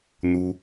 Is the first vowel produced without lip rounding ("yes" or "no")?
no